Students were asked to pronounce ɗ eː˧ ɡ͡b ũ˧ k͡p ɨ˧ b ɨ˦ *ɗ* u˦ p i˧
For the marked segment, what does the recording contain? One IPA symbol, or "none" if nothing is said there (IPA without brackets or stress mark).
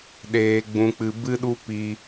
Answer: ɗ